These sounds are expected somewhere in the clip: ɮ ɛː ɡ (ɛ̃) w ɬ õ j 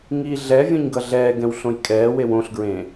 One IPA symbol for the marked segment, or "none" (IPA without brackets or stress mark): ɛ̃